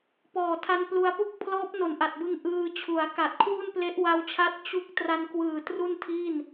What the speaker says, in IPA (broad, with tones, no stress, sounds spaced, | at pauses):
p ɔː˨˩ tʰ a˧ n p l u˧ a̯ p u˥˩ k̚ pʰ l ɔː˦˥ p̚ n o˨˩ n ʔ a˨˩ t̚ b ɯ˧ ŋ ʔ ɯː˧ t͡ɕʰ u˩˦ a̯ k a˨˩ t̚ kʰ w u˥˩ n p l e˦˥ ʔ w a˦˥ w t͡ɕʰ a˦˥ t̚ t͡ɕ u˦˥ k̚ t r a˧ n k w ɯː˨˩ t r u˥˩ n tʰ i˥˩ n